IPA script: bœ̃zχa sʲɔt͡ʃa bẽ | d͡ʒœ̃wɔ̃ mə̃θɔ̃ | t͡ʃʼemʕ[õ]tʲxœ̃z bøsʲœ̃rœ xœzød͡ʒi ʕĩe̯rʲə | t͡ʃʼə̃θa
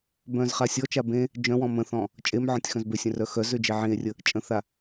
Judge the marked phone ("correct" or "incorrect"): incorrect